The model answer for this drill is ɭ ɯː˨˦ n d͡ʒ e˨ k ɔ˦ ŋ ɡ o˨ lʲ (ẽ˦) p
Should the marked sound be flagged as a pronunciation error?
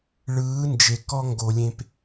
yes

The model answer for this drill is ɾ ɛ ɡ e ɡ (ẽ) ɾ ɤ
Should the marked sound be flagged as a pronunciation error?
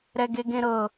no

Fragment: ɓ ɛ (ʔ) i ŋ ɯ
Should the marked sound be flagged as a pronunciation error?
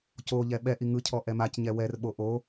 no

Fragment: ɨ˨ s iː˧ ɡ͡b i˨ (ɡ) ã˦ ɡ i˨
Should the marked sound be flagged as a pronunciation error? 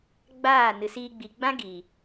yes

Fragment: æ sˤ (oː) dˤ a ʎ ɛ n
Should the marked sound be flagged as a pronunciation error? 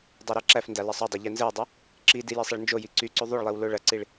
yes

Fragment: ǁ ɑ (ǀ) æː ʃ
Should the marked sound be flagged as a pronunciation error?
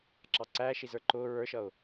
no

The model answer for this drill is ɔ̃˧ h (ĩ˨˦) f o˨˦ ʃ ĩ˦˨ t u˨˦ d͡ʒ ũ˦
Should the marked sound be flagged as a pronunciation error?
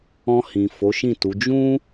yes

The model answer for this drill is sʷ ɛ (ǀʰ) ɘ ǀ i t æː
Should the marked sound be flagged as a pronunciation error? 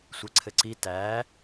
no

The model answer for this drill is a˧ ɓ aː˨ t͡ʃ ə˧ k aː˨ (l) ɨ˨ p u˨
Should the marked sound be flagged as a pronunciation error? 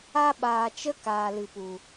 no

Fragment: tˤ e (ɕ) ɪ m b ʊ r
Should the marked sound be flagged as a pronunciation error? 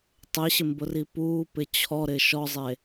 no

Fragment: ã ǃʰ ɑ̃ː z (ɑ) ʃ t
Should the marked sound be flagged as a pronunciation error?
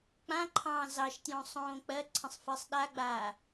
no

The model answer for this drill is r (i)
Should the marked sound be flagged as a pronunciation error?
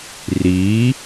no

